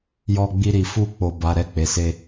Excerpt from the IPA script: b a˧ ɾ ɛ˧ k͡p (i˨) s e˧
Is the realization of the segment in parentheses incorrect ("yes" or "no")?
yes